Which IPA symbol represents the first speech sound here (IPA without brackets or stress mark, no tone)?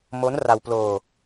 m